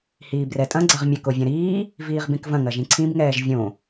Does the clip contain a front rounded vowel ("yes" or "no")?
no